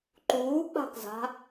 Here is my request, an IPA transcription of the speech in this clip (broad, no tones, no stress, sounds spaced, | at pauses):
ǃ uː k͡p a̤ k z a̤